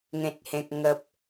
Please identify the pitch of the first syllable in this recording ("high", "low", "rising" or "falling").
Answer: low